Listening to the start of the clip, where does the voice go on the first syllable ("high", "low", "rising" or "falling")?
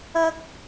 high